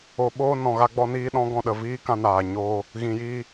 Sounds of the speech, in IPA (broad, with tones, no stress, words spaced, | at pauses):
o˨ɓoː˧ nɔ̃˨ɣa˧ɡ͡bɔ˧niː˧ ɗɔ̃˨˦ɡɔ̃˨ ɗə˨viː˦kã˧naː˨ ɲoː˧ | ɣĩ˨jiː˧